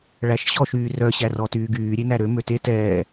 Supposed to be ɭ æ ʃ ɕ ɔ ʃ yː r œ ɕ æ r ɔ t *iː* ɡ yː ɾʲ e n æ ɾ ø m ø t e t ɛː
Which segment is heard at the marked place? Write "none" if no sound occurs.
yː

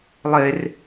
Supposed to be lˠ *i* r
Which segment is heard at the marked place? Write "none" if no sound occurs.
e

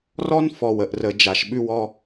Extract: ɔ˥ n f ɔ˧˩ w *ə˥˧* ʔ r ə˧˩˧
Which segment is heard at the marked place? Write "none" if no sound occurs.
ə˧˩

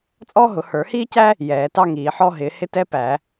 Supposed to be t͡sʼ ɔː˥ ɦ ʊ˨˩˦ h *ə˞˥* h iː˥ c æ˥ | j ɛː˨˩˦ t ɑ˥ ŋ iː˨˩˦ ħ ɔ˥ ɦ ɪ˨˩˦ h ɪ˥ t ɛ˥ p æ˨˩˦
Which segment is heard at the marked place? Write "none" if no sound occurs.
ə˞˨˩˦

